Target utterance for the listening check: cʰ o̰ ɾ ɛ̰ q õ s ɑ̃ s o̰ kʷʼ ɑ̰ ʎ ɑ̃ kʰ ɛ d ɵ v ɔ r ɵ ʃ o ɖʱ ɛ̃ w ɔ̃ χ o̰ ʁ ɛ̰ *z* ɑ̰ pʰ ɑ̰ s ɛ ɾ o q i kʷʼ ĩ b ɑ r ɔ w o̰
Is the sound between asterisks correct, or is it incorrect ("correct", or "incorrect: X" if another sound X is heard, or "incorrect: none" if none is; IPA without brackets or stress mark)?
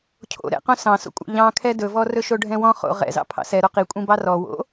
correct